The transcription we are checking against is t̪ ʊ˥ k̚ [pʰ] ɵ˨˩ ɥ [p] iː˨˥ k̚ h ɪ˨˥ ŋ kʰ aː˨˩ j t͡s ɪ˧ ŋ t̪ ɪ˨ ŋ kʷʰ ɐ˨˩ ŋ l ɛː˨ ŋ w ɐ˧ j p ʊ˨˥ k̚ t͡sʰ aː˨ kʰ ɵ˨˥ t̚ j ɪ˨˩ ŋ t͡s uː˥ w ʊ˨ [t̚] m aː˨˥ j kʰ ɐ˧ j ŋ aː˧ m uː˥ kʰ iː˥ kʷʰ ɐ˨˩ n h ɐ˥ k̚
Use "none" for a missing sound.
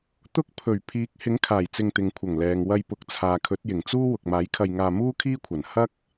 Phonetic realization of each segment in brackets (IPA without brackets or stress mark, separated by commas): pʰ, pʰ, k̚